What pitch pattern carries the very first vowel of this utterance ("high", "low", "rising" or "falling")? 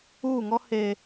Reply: falling